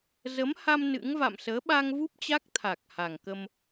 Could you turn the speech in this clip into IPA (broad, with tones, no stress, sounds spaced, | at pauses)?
z ə˨˦ m h a˧ m n ɨ̰˧˥ ŋ v a̰˧˨ m s əː˨˦ ɓ a˧ ŋ v u˦˥ p̚ t͡ɕ a˦˥ k̚ t̪ʰ a˨˩ k̚ h a˨˩ ŋ k ə˧ m